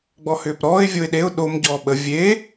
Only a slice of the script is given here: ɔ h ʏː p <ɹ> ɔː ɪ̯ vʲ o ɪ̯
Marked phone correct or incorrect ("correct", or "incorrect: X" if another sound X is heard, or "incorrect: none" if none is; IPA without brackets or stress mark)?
incorrect: ɾ